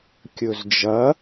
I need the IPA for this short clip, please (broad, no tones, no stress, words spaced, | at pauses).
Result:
kʲɵzd͡ʒɐ